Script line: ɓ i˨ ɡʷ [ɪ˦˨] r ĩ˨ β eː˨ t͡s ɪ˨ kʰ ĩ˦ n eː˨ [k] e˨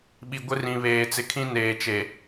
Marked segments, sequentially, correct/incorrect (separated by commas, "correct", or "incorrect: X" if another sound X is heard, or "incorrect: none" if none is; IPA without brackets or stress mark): incorrect: ɪ˦, incorrect: t͡ʃ